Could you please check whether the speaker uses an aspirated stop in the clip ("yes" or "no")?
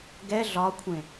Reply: yes